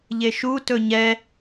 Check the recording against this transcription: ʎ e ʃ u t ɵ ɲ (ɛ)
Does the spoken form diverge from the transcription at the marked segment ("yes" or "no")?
no